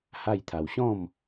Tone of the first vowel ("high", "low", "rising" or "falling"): falling